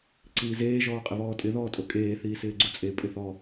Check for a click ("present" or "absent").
present